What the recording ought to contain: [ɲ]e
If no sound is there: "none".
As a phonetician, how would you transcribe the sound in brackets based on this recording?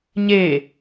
ɲ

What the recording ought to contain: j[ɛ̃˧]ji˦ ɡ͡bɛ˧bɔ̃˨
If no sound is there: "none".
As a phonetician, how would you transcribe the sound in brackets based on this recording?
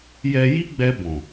ɛ˧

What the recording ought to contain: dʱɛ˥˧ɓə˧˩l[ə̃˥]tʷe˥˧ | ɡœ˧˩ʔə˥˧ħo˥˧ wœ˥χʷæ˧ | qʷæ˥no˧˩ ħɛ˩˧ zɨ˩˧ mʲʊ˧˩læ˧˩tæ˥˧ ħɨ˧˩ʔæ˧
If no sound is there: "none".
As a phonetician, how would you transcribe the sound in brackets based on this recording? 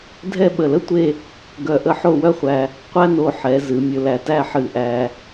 ə˥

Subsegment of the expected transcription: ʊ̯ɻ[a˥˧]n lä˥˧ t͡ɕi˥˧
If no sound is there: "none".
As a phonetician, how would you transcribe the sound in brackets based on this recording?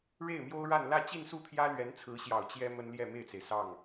a˥˧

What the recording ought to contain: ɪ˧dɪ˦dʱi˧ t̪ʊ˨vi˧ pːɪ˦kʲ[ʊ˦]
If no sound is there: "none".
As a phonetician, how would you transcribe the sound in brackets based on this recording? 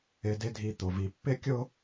ʊ˦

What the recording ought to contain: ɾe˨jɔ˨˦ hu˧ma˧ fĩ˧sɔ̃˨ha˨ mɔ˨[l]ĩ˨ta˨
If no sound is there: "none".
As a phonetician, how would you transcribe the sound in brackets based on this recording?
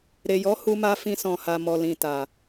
l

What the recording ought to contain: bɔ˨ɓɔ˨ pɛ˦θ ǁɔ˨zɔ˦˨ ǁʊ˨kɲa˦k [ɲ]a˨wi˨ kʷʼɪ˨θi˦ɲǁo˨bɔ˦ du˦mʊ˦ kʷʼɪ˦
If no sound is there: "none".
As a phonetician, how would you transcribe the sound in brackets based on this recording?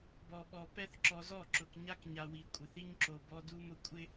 ɲ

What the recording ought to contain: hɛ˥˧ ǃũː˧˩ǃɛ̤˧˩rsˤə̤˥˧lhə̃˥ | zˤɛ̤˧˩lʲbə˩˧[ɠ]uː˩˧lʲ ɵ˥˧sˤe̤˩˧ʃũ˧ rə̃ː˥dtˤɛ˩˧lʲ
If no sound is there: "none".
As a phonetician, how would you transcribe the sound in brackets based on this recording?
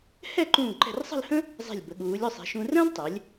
ɠ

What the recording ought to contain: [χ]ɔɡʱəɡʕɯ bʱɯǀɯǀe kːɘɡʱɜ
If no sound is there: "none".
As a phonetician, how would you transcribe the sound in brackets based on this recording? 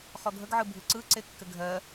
χ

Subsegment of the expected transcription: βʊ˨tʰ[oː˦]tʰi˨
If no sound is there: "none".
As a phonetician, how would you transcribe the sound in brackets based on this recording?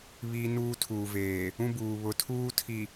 uː˦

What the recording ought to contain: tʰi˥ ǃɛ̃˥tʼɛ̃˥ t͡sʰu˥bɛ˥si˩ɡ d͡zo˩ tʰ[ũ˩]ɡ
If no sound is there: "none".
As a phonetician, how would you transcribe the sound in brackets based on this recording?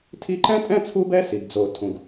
ũ˩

